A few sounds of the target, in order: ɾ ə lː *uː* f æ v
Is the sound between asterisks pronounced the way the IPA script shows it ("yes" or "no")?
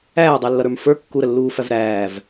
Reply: yes